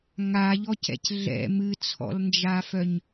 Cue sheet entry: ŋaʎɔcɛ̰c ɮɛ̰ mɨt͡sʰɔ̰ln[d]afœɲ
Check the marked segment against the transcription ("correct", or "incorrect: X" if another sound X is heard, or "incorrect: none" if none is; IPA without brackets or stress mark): incorrect: d͡ʒ